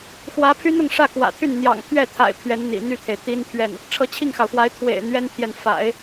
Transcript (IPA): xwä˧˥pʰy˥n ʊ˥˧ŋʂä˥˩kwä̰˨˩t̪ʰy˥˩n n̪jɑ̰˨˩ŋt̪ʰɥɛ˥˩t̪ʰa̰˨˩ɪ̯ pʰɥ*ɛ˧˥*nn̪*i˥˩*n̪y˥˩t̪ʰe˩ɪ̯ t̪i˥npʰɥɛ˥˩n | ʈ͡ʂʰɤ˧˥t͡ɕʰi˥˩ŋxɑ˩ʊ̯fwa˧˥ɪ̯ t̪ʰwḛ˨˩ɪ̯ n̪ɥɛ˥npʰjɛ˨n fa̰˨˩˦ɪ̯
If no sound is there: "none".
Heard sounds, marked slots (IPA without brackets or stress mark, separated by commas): ɛ˧˥, ḭ˨˩